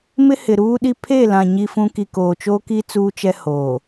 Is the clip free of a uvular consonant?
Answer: yes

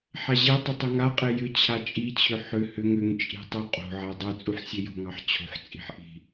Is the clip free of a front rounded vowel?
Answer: no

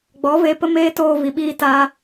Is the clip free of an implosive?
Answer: no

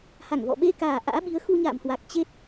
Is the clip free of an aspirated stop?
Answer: yes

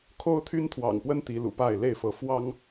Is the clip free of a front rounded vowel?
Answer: no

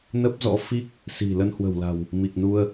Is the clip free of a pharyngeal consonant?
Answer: yes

